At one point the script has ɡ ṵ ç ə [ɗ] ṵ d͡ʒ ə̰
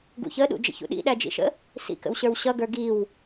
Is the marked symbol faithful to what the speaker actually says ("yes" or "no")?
yes